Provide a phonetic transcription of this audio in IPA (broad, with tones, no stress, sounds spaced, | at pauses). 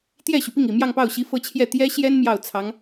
t̪ j ɛ˥˩ ɕ y˩ p i˥˩ ŋ i˨˩ m j ɑ˥˧ ŋ p ɑ˥˩ ʊ̯ ɕ i˧˥ f ɤ˥˧ t͡ɕʰ j ɛ˥˩ t̪ j ɛ˥ ɕ j ɛ˥ n m j ɑ˥˩ ʊ̯ t͡sʰ ɑ˧˥ ŋ